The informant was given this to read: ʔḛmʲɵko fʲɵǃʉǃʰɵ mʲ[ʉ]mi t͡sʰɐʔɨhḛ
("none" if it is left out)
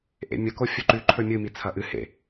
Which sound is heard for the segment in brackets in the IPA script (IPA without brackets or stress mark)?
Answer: ɨ